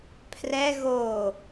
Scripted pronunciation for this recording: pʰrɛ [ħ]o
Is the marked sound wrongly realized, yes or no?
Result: yes